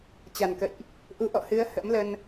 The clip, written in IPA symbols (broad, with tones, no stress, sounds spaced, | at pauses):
t͡ɕ a˨˩ n k ə̰˧˨ j ʔ | ʔ u˨˦ ʔ ɔ̰˧˨ h ɨ˨˦ ə̯ h ə̰˧˥ m l ə˧ n